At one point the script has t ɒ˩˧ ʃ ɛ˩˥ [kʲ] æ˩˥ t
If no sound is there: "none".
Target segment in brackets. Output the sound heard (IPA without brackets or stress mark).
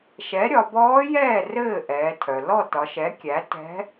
kʲ